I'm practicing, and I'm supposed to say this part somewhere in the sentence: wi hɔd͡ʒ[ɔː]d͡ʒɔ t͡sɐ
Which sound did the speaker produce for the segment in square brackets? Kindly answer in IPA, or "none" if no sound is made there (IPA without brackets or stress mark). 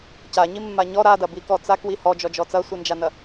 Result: ɔ